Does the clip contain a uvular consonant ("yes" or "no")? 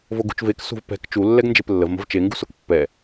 no